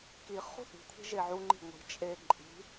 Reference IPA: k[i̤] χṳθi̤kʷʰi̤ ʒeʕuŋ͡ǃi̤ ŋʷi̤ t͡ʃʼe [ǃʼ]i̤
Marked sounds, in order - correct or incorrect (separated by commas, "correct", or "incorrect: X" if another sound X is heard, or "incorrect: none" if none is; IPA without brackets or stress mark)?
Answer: incorrect: i, correct